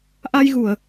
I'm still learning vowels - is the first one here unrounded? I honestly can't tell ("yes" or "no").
yes